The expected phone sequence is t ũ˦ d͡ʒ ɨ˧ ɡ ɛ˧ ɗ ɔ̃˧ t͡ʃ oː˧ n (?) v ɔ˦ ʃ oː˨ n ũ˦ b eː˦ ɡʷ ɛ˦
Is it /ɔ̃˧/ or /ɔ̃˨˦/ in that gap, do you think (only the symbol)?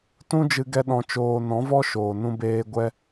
ɔ̃˨˦